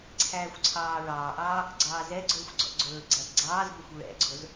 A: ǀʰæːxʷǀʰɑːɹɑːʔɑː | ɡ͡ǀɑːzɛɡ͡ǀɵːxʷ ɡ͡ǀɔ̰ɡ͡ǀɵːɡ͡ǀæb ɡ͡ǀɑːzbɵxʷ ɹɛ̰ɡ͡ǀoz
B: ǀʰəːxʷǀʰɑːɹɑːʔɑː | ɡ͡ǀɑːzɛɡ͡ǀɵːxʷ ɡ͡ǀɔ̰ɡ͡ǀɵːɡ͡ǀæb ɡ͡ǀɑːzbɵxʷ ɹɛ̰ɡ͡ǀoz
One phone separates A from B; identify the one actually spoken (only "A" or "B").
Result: A